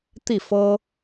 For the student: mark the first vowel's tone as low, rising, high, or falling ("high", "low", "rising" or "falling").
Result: falling